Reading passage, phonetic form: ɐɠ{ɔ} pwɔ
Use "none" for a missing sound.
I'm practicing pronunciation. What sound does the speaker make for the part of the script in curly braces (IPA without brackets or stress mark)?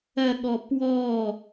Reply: ɔ